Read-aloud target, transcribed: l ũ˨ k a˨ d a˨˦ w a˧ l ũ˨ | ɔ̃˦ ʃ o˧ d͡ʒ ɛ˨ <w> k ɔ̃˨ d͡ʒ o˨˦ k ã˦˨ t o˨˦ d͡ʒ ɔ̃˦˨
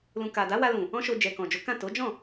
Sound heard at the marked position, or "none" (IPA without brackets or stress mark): none